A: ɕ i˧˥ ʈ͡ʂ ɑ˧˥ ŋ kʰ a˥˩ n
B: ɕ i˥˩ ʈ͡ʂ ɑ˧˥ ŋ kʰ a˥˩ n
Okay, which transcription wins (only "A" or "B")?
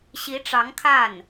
A